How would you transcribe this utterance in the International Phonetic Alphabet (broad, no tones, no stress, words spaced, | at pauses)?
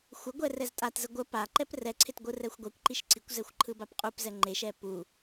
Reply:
xʷəɡʷɛ rɛztʼatzə ɡʷə pa ǃɛprɛǀʰɪt ɡʷɯrɛxʷɡʷɛkʷǃiʃ ǀikʷzɛxʷ ǃʰɯbapqʼupzɛ ŋ͡ǃeʃɛ pu